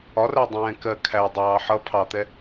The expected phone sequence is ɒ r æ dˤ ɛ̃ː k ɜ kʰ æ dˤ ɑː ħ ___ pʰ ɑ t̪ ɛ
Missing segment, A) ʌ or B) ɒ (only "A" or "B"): A